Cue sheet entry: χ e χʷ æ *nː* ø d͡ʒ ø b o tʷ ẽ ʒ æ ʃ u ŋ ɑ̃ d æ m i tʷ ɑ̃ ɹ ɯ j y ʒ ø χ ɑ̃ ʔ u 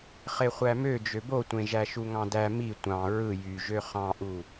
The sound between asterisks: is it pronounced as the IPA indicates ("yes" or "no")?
no